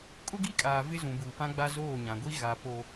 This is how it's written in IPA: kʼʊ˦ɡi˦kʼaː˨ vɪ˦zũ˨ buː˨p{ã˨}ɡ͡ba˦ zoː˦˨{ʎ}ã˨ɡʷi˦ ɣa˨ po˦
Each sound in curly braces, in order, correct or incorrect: incorrect: ã˦, incorrect: ɲ

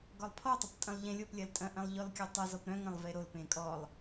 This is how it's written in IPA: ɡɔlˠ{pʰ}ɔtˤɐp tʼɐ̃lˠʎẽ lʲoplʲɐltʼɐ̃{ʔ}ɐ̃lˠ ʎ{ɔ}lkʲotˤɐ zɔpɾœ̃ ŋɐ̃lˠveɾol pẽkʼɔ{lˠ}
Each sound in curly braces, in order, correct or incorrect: correct, correct, correct, correct

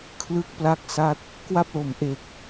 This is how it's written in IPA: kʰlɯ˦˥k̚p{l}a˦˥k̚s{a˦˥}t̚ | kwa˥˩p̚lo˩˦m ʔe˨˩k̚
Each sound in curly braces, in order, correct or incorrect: correct, correct

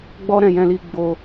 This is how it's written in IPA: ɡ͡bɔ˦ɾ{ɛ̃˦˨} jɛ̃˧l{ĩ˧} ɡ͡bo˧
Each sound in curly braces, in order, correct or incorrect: correct, incorrect: i˧

